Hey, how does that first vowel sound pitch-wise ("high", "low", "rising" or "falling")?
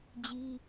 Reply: high